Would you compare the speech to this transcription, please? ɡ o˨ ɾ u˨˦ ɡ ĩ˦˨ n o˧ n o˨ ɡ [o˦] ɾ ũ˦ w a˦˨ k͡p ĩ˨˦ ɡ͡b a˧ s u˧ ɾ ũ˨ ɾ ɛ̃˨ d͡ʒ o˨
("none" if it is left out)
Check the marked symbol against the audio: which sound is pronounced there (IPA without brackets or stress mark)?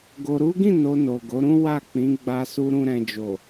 o˨˦